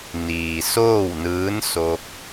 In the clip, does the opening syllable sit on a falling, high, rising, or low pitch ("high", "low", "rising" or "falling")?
low